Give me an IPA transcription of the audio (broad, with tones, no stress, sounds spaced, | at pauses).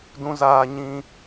d ũ˦ z aː˦ ɲ ĩ˦